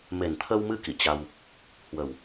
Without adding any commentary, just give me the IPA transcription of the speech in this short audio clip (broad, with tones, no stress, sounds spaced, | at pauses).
m e˨˩ n t̪ʰ ə˧ w m ɨ˧ k ḭ˧˨ t͡ɕ a˧ w | h w ə˨˩ w